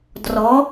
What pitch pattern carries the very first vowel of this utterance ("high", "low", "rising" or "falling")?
rising